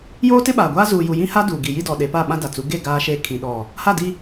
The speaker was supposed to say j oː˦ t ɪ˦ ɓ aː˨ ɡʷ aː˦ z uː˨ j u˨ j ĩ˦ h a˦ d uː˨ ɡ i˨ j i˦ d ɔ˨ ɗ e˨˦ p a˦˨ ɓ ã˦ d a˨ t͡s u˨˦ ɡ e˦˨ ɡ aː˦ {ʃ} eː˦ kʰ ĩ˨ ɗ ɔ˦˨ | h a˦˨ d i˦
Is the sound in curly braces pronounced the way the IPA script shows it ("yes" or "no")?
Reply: yes